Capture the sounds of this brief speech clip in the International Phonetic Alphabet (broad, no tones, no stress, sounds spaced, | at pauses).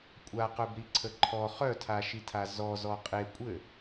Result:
kʷʼ a q œ b ɾ i ǀʰ ə ǃʰ ɔ χ œ tʰ a ʃ i tʰ a z ɔ z ɔ qʼ e kʷʼ ɘ